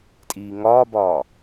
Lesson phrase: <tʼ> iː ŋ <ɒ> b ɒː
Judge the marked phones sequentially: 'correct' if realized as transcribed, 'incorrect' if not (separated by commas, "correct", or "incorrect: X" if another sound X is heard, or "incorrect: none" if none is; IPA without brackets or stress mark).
correct, incorrect: ɒː